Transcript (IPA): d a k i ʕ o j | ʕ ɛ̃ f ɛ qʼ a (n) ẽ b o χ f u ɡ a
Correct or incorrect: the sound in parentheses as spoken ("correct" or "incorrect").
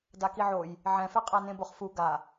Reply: correct